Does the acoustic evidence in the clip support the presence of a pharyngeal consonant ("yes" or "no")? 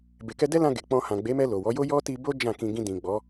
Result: no